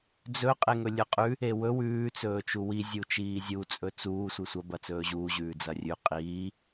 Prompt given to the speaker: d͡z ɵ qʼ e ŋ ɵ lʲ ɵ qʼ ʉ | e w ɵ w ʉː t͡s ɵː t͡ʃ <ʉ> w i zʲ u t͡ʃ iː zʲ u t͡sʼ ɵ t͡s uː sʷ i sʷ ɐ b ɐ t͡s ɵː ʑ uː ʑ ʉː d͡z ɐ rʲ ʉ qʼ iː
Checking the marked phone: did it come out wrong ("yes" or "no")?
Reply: yes